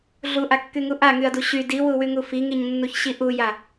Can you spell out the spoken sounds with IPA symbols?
ɮ u ʔ a kː y ŋ u ʔ a ŋ y ɐ̯ d u ɕ y d i w u w y ŋ u f i ŋ i ɲ nː u ç ɕ i ʔ u j a

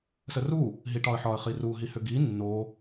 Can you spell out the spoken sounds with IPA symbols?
s ə r u | ɦ i ʈ ɒ ə̯ ħ ɒ ə̯ χ i r u ɦ i h ʏ ɡ i nː o

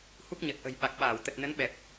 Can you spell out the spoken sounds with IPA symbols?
h u˦˥ k̚ ɲ ə˨˩ t̚ ʔ ə̤˨˩ j ɓ a˨˩ k̚ ɓ aː˧˩ w t̪ ə˨˩ t̚ n ə˨˦ n ɓ ɛ˨˩ p̚

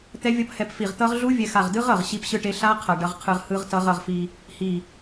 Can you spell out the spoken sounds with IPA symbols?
t̪ ɛ˦˥ vʲ ʌ˦˥ p h ɛ˧ p f i˧˩ ʁ t̪ ʌ˦˥ ʁ ɮ u˦˥ vʲ ɛ˧ x a˧˩ ʁ d ɯ˦˥ ʁ ʌ˧˩ ʁ ɕ i˦˥ p ɕ ɯ˦˥ ʈ e˦˥ ɬ a˦˥ qʰ ʌ˧˩ ɖ ʌ˧ ʁ qʰ ɯ˧ ʁ h ɯ˦˥ ʁ t ʌ˦˥ ʁ ʌ˧ ʁ f i˧ | h i˧˩

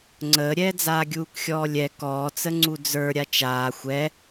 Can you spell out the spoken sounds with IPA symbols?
ŋ͡ǀ əː ɾʲ ɛː d͡z aː ɡʲ uː k xʲ ɔː lʲ ɛ k ɔː t͡s ə ŋ͡ǀ u d͡z ə˞ ɾʲ a t͡ʃ aː xʷ ɛ

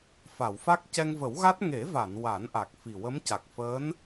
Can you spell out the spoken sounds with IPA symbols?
f a˨˩˨ w f a˦˥ k̚ c ɛ˧ ŋ v ə˨˩˦ w ɣ a˦˥ t̚ ŋ e˨˩˦ v a˨˩˨ n w a˨˩˦ n ʔ a˨˩ k̚ f i˨˩ w ə˧˥ m c a˨˩ k̚ f əː˧˥ n

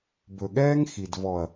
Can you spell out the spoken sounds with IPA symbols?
b ɵ˨ ɠ ɛː˦ ŋ x i˨ d v ɔ˨ ɐ̯

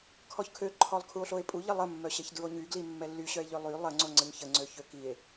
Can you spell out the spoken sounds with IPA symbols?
kʰ ɔ ç kʰ ø ǃʰ ɔ lˠ kʰ u o̯ ɬ o e̯ pʼ u ʎ ə lˠ ə mː œ ɕ ɛ ç d ɹ o ɲ y ɡ l i mː ɛ lː y ɕ œ e̯ ʎ ø lˠ y lˠ ə ŋ͡ǀ o ŋ͡ǀ ə ɲ ç ə ŋ͡ǀ ø ç ø k i e̯

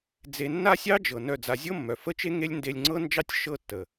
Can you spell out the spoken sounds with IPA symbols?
d͡z e˧ nː a˦ sʲ ɑ˦ d͡ʒ ɤ˨ n œ˦˨ d͡z a˧ zʲ ɤ˦ mː œ˨ f ə˦ t͡ʃ e˦ ŋ e˦ lʲ n d e˧ lʲ ŋ͡ǀ ɤ˦ n d͡ʒ ɑ˦ tʲ ʃ ɤ˦˨ tː ə˨

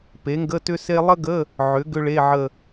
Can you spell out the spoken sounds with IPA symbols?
p e˩˥ ŋ ɡ ə˧˥˧ t ʏ˥ s e˥ lˠ ə˥ ɡ ə˧˥˧ | ʕ ʏ˩˥ ɡ ʏ˥ ɭ e˧˥˧ ʕ ə˦˨

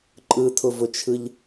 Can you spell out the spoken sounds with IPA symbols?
ǃʼ ɯ tʰ ʊ v ʊ t͡ʃʰ ɯ ʎ

